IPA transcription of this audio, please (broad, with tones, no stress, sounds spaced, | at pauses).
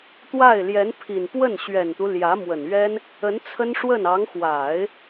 t̪ w a˥˩ ɪ̯ l j ɛ˧˥ n pʰ i˨˩ n p w ə˥˩ n ɕ ɥ ɛ˨˩ n t̪ u˦ l j ä˧˥ m w ə˨˩ n ɥ ɛ˥ n | ə˧˥ n t͡sʰ ə˥ n ʂ w ə˥˩ n ɑ˧˥ ŋ x w a˨˩˦ ɪ̯